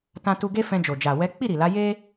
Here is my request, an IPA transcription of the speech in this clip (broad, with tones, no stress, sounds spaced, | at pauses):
t ã˧ t u˧ ɡ e˦ f ɛ̃˧ d͡ʒ o˨ d͡ʒ a˨ w ɛ˨˦ k͡p i˦˨ ɾ i˨ l a˨˦ j e˦